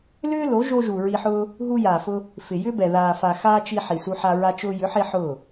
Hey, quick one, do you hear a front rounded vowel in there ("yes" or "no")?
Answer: yes